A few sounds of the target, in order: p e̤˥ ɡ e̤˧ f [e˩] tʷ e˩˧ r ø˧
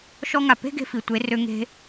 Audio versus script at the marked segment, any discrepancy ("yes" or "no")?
yes